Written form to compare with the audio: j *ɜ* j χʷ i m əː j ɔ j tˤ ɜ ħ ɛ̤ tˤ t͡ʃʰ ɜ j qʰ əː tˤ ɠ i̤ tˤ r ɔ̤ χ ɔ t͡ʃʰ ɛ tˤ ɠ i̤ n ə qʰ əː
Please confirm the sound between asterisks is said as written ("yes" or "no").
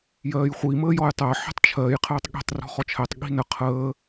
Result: no